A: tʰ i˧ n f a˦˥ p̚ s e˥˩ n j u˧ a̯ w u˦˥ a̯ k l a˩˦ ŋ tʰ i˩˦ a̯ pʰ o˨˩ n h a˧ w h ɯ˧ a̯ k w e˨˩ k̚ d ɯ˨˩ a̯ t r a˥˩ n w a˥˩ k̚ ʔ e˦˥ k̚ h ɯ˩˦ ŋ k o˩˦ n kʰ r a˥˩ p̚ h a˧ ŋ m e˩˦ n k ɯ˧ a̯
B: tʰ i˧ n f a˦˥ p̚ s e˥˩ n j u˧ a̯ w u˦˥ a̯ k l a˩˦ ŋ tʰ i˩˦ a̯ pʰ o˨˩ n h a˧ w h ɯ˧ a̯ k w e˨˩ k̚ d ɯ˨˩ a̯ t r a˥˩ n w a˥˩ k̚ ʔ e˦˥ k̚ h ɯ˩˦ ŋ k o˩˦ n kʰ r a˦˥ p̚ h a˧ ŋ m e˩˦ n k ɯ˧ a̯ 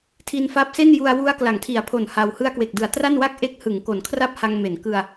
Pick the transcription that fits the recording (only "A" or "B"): A